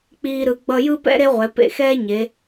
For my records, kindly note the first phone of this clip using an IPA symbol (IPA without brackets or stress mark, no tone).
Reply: k͡p